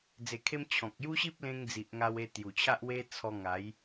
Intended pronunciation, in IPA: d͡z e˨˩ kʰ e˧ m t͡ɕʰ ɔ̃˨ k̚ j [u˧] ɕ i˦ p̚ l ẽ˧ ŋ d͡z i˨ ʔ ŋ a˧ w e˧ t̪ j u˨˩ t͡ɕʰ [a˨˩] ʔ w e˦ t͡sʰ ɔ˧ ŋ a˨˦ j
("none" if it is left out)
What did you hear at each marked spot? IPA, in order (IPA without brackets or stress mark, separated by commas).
u˦, a˦